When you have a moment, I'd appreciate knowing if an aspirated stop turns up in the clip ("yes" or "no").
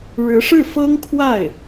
yes